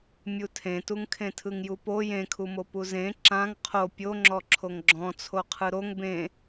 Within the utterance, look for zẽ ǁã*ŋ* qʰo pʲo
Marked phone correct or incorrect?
correct